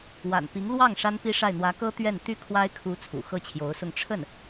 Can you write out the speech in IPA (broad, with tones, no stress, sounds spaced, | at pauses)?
w a̰˨˩ n p i˧˥ ŋ l w ɑ˥˩ ŋ ʂ a˥ n p i˥ ʂ a˥˩ ɪ̯ n̪ w ä˧˥ k ɤ˥ t̪ ɥ ɛ˥˩ n t̪ y˥ kʰ w a˥ ɪ̯ kʰ u˧˥ t͡sʰ ṵ˨˩ x ɤ˥˩ t͡ɕʰ j o˧˥ ʊ̯ s ʊ˥˧ ŋ ʈ͡ʂʰ ə˥˩ n